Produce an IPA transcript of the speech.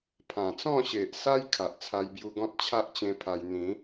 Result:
pʰã˨˩t͡sɔ̃˥˧ɕe˨ʔsa˦j kʰa˨ʔt͡sʰa˧jbju˧ɡɔ̃˦t̚ t͡ɕʰa˦ʔt͡ɕẽ˧ pʰa˧j n̪ĩ˨˦

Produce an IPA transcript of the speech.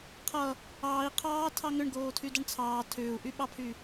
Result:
qʰʌ | ɑːi̯ qʰɑːtʰɑ ŋʏɳɡoːtʰydʌɳ t͡sʰɑː tʰʏːu̯ʔyɓɑpʰy

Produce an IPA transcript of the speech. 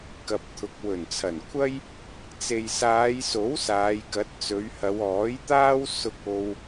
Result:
kɐ˨p̚t̪ʰʊ˨k̚ wɵ˨˩nt͡sʰɐ˨˩nkʷʰɐ˥j | t͡se˨jsaː˨˧jso˨˥w saː˨˧jkɐ˨˥t̚ t͡sɵ˨˧ɥhɐ˨˧wɔː˨˥jt̪aː˥w sʊ˧k̚o˧w

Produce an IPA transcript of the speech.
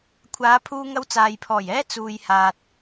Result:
kʷʰaː˨˧pʰuː˧ŋɐ˧w t͡saː˨jpʰɔː˨˩jɛː˥ t͡suː˨jhaː˨t̚

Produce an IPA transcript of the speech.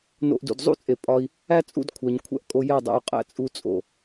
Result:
no̰˧ʔdṵ˨d zˤṵ˦t͡sʼe˨ pʼɒ˦i̯ | æ˦t͡sʼṵ˦˨d kʷʰæ˨ɲkʷʰæ̰˧ʔkʼo˧ jæ˦˨dˤæ̰˧u̯qʼæ̰˦ t͡sʼu˦t͡sʼo̰˨

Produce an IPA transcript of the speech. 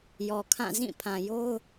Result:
jɔ˨kʰã˦˨ zĩ˦˨pʰã˨jo˦ʊ̯

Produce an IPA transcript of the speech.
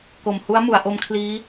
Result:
ko˨˩mhu˦˥a̯mu˩˦a̯ ʔo˦˥mkʰliː˦˥

